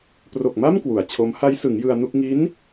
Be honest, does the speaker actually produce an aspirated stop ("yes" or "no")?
yes